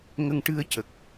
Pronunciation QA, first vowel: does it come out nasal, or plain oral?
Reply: oral